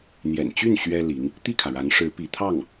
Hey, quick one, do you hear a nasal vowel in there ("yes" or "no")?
no